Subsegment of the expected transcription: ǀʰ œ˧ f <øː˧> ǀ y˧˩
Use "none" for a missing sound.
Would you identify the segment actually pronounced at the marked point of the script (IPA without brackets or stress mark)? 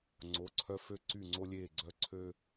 ø˧